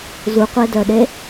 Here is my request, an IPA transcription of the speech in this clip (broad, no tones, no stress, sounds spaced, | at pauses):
z u qʷ e d œ ɗ e